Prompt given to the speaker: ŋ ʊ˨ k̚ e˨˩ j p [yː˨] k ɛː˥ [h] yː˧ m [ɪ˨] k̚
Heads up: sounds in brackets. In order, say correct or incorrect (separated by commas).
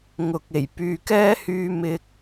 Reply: correct, correct, incorrect